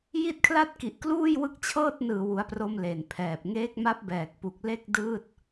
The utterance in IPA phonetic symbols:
ji˥˩t̚kʰla˥˩t̚ki˨˩ʔ kluː˥˩jwɯ˦˥k̚t͡ɕʰɤː˥˩t̚ nɯː˨˩wu˩˦a̯pro˧m le˨˩npʰɛː˨˩p̚ ŋeː˦˥k̚ma˦˥p̚bɛː˨˩k̚pu˨˩k̚ le˥˩k̚ dɯː˥˩t̚

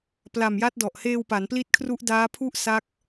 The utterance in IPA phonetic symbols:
pla˨˩mja˦˥t̚dɔ˨˩ʔ heː˧wpa˩˦npli˦˥t̚kʰru˦˥ʔ daː˦˥pʰu˥˩ʔ sa˦˥k̚

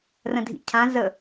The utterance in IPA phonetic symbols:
rə̃dʱḭcʰã zə

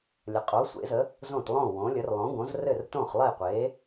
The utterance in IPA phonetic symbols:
lʲə˨qʼo˨˥sʷḛ˨˥zə˨˥ | zõ˥˨tlˠõ˥˨wõ˨˥lʲə˨˥r lˠõ˨˥ɡõ˨˥zrɘ˥˨r tõ˥˨χlˠe˥˨qʷe˨˥

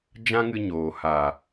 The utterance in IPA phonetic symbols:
d͡ʒã˦ŋɨ˧ɲoː˨ha˨

